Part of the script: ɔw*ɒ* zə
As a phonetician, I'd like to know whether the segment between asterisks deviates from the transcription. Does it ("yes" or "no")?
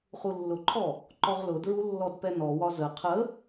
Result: no